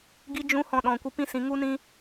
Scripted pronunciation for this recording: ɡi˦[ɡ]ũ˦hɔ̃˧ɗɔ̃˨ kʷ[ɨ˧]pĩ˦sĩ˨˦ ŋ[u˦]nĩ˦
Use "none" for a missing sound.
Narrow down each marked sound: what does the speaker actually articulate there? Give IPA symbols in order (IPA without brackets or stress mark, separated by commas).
d͡ʒ, ɨ˧, u˦